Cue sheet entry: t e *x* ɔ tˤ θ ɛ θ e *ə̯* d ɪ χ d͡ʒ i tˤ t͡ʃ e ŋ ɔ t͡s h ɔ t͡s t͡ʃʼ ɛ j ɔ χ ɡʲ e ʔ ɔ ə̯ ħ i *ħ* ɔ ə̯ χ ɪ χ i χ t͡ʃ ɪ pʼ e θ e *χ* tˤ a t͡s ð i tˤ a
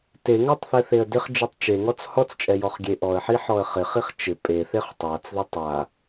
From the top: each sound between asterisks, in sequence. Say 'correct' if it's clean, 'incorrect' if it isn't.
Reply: incorrect, correct, correct, correct

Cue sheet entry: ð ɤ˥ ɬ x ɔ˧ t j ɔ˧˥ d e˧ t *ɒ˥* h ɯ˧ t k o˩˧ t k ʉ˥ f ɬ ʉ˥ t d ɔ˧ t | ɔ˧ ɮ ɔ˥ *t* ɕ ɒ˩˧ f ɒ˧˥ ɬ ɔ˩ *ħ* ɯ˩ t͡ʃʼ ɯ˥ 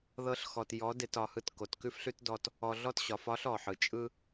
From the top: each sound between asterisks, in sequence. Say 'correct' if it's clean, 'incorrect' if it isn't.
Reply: incorrect, correct, correct

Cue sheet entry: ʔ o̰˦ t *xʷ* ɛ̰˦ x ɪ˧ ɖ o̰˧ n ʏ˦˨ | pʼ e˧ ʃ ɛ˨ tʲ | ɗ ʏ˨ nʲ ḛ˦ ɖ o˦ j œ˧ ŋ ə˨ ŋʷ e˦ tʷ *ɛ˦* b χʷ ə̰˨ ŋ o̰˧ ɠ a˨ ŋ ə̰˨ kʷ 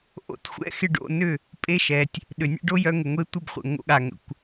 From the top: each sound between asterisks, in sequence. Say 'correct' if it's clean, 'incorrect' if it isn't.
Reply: correct, incorrect

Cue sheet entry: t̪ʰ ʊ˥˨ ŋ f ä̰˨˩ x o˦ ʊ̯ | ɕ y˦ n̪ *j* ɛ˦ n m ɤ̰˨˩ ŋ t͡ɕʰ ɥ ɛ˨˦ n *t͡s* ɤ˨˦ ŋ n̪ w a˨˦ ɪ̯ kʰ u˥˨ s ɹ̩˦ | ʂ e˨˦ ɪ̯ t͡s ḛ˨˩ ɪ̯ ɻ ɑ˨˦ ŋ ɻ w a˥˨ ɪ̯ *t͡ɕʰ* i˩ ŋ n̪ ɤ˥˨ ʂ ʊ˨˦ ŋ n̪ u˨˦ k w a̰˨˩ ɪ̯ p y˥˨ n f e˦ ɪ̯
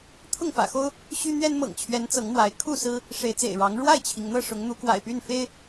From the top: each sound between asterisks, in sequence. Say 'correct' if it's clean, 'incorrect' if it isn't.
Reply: incorrect, correct, correct

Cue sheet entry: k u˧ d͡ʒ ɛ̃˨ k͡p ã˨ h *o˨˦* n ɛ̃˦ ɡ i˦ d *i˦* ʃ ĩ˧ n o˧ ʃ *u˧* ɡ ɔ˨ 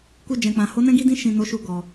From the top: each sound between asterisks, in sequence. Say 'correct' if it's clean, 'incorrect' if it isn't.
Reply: correct, incorrect, correct

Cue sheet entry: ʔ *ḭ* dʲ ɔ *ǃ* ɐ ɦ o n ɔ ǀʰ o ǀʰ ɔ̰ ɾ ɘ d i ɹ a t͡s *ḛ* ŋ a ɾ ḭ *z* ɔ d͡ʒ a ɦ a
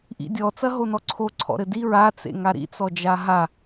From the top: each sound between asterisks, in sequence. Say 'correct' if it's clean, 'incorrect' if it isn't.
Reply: correct, incorrect, correct, incorrect

